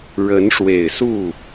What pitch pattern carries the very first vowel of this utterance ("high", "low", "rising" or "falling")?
rising